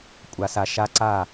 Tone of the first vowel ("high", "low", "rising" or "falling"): low